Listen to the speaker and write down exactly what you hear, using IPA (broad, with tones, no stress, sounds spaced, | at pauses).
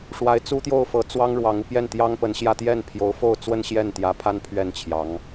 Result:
ʂ w a˧˥ ɪ̯ t͡s u˥ t̪ j o˥˩ ʊ̯ f ɤ˧˥ t͡s w ɑ˥ ŋ ɻ w ɑ˧˥ ŋ u˧ p j ɛ˥˩ n t̪ j ɑ˥ ŋ p ə˧˥ n ɕ j ä˥˧ t̪ j ɛ˥˩ n pʰ j o˧˥ ʊ̯ f o˥˧ ʊ̯ t͡s w ə˥˧ n ɕ j ɛ˥˩ n t̪ j ä˧˥ pʰ a˥ n pʰ ɥ ɛ˥˩ n t͡ɕʰ j ɑ˧˥ ŋ